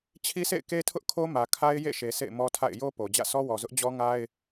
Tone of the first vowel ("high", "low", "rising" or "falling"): high